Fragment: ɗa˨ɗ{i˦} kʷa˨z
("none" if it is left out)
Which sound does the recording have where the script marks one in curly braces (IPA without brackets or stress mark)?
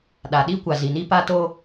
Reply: i˦